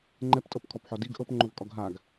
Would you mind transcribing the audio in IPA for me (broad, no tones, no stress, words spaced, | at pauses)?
ŋ͡ǃɛptʼɤpkʰɔpħɔ diɡ ʔɤpŋ͡ǃovkʼɔɡ ɦaɡ